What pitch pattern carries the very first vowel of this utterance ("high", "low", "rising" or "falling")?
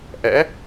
rising